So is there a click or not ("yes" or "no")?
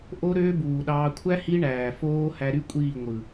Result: no